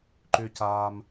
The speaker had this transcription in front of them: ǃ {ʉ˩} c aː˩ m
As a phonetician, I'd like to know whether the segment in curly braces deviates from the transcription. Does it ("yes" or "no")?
no